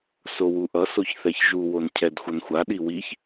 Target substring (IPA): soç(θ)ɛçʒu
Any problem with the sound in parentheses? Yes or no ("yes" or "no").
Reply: no